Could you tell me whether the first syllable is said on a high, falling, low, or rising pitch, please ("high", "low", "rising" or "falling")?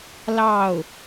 falling